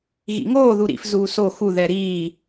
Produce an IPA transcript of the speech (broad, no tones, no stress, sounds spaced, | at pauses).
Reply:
ɣ ḭ ŋ oː ð u ɾ ḭ f z uː s o x u ð ɛ ɾ iː